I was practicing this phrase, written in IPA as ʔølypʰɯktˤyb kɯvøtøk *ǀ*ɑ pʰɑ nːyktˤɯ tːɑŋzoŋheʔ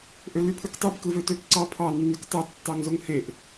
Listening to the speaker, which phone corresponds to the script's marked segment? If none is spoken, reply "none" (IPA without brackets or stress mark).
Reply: ǀ